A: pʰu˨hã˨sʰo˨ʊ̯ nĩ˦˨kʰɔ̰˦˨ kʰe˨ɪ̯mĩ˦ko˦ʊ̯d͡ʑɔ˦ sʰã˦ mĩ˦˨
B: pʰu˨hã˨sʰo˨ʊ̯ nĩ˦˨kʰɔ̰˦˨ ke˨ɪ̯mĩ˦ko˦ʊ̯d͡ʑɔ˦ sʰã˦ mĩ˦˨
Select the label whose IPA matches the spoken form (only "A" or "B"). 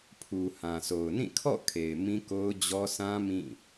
A